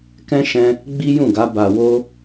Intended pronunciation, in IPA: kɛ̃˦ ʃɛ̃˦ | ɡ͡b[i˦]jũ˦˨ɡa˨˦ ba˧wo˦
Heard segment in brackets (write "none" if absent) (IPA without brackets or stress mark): i˦